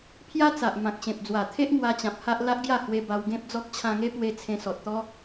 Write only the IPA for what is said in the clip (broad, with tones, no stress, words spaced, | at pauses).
pʰja˦t͡sa˨ʔ mã˨k̚ɕẽ˨p̚d͡zwa˨˩t̪ʰe˦ʔ ŋwa˧t͡ɕã˨p̚ ha˦ʔ la˦ʔɡja˥˧ hwe˧ ba˧wɡẽ˦p̚d͡zɔ˦k̚ t͡ɕʰã˧ŋe˦pwe˧ t͡sʰẽ˧sɔ˨t̚ t̪ɔ˦